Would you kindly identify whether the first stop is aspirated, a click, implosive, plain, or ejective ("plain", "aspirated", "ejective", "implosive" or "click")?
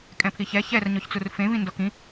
ejective